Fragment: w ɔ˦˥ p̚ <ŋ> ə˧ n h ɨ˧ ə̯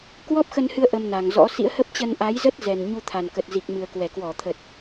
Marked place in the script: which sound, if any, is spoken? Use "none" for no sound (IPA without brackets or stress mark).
x